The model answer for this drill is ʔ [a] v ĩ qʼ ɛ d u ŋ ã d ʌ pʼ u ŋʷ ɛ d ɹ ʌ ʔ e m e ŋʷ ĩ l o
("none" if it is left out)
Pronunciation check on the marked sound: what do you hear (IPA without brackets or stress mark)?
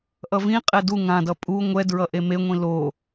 ʌ